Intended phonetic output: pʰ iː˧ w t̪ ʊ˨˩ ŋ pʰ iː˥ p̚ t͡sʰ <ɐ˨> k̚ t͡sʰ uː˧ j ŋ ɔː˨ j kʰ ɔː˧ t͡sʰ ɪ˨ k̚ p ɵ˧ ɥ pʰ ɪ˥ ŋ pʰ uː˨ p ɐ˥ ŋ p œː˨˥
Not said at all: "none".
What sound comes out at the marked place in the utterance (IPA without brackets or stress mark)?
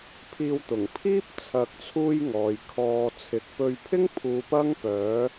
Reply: ɐ˨˥